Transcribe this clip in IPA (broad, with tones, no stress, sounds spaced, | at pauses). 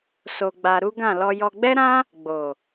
s o˧ ɡ͡b a˧ ɾ u˦ ɡ ã˦˨ l ɔ˧ j ɔ˧ ɡ͡b ɛ˦ ɾ ã˦ | ɡ͡b o˨